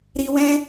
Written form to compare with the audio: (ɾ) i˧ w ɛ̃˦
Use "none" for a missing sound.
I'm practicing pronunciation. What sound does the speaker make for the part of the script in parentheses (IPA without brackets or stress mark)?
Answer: ɾ